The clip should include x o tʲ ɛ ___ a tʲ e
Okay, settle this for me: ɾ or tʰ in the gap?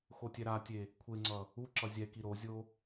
ɾ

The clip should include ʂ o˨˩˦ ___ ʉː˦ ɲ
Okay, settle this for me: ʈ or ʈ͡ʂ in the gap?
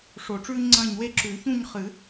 ʈ͡ʂ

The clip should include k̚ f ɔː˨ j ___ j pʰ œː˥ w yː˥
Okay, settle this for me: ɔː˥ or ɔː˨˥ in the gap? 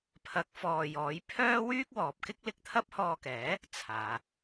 ɔː˨˥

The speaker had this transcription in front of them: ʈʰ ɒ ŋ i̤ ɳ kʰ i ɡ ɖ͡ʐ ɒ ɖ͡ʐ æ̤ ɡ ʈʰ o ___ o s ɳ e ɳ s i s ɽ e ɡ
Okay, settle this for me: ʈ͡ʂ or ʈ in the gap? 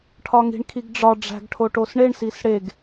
ʈ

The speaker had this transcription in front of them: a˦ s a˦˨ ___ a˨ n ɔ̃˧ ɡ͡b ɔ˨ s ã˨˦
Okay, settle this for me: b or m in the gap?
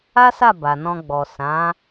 b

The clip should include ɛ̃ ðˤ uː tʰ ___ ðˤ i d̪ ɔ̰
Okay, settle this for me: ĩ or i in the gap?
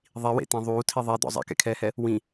i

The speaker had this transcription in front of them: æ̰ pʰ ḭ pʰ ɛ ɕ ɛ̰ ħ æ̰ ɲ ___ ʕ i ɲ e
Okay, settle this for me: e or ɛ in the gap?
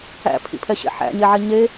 e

